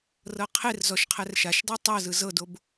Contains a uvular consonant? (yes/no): yes